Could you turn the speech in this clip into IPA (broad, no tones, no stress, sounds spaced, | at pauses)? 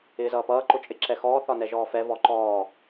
ɪː z ʌː p ʌː ǃ ʊ t͡ʃʼ ɪ ǁ ɛ x ɔː θ ɒ n ɛ ʒ ɔː f ɛ v ɔ ǃ ɔː